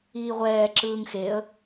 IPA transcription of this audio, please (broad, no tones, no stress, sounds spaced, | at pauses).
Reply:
iː ʁʷ ɛː ǁ ɯː ŋ x e ə̯